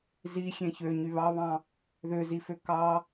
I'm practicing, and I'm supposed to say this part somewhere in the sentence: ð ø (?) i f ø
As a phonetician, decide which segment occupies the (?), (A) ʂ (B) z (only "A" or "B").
B